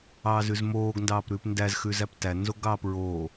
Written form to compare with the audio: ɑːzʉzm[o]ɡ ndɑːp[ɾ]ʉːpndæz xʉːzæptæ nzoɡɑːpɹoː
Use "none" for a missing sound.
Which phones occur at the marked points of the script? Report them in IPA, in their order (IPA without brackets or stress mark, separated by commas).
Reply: oː, ɾ